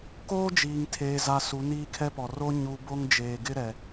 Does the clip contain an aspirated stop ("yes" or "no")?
yes